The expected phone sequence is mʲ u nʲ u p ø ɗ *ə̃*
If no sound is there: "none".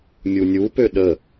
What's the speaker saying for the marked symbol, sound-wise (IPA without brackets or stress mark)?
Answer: ə